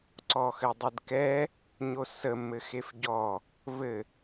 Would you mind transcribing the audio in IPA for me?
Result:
ǀ ɔ x ɘ dˤ ə d k ɛ | ɲ o s ə m ɘ x e f ɟ ɔ | v ɘ

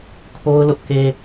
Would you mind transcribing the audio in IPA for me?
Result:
kʰ o˦ ʊ̯ l ʊ˦ ʔ k e˦

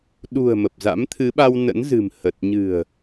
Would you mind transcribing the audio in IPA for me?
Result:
ɗ ṳ˨˩ ə̯ m ə˨˩ p̚ z a̰˧˥ m t̪ʰ ɨ˨˦ ɓ a˧ w n ə̰˧˥ n z ɨ̤˨˩ m h ə˨˩ t̚ ɲ ɨ̤˨˩ ə̯

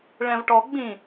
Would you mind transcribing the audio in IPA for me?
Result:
ɭ ɛ̃ v ʈ ɔ ɡ͡b ĩ

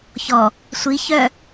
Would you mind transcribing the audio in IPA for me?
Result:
ç ɔ | sʷ i ç œ

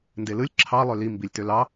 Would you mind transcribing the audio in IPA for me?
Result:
n d e l ɯ lʲ ǁʰ ɑ lˠ ø l i m b i lʲ t ø l ɑ

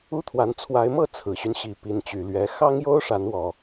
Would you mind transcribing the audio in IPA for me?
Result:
u˦ t̪ʰ w a˨˦ n t͡sʰ w a˨˦ ɪ̯ m ɤ˥˨ t͡sʰ ɹ̩˨˩ ɕ y˦ n ɕ i˨˩ p i˨˦ n t͡ɕ y˨˩ l ɥ ɛ˨˦ x ɑ˦ ŋ j o˦ ʊ̯ ʂ a˨˦ n w ɔ˨˩

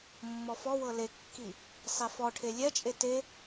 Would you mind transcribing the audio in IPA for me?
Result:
mː ɔ f ɔ w ɤ l e kː i | sˤ e f ɔ ʈʰ e lʲ ɛ t͡ʃʼ e t e

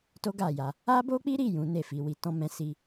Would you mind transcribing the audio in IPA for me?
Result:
t o˦ ɡ a˦˨ j a˧ | a˦ b o˦ k͡p i˦ ɾ i˦˨ j ũ˨˦ n e˦˨ f i˨˦ w i˧ t ɔ̃˦ m ɛ̃˦ s i˦

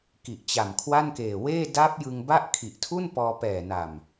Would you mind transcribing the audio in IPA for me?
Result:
k i˨˩ ʔ t͡ɕ a˨˩ m kʰ w a˥˩ n k eː˨˩ w eː˥˩ d a˦˥ p̚ j ɯ˧ ŋ b a˥˩ ʔ kʰ i˨˩ ʔ tʰ u˥˩ n p ɔː˧ p ɛː˨˩ n a˨˩ m

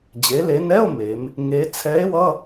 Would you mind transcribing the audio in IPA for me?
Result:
d͡ʑ e˩˧ l e˩˧ n ɛ˧˥˧ o̯ m e˩˧ m | ŋ e˧˥ t͡sʰ ɛ˧˥ e̯ w ʌ˧˥˧

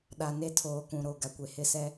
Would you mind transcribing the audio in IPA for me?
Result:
ɗ a˨ n e˦ tʰ oː˨ k ũ˨ ɾ o˨ ɡ a˨ kʷ e˨ h ɪ˦˨ s ɛ˦

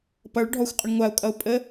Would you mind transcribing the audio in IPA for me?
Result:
p ʌ ɭ ɖʱ ɔ xʷ qʼ ə ɳ ŋʷ a ʊ̯ kʼ ʌ ʊ̯ pʼ ə

